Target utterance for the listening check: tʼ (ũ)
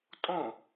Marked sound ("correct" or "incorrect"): incorrect